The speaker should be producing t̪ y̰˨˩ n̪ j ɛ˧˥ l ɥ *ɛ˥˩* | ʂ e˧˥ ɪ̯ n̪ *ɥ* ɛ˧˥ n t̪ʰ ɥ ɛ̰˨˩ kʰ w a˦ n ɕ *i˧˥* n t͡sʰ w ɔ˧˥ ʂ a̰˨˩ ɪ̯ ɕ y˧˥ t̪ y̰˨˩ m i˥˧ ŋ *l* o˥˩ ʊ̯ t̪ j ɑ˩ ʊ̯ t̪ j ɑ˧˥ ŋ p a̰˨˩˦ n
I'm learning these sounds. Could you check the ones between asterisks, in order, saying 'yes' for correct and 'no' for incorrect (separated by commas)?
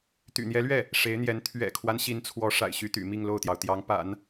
yes, no, yes, yes